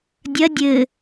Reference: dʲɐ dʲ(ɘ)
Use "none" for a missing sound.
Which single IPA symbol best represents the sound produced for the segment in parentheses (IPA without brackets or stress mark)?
ɘ